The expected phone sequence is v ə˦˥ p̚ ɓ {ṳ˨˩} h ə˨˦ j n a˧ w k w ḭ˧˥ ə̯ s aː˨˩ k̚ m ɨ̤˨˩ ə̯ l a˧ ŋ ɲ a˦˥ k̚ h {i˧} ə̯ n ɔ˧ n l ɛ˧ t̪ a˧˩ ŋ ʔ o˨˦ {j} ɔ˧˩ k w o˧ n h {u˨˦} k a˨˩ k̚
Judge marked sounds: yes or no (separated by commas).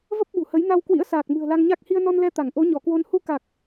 yes, yes, no, no